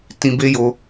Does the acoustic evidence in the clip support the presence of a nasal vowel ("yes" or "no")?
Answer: yes